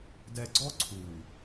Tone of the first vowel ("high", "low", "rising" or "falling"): low